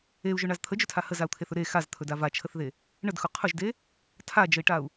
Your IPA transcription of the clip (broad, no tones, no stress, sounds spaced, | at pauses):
e u̯ ʒ ɵ ɳ a z t̪ʰ ə d͡ʒ ɵ tʰ a h ə z a u̯ t̪ʰ e θ ɵ ɾ e x a z t̪ʰ ɵ d a v a t͡ʃʰ ə θ ð e | ɳ ə d x ʊ qʰ ʊ ʒ d e | tʰ a d͡ʒ ə i̯ ʈ a u̯